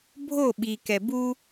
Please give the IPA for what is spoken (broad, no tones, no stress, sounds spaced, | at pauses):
bʱ o ɓ i k ɛ b u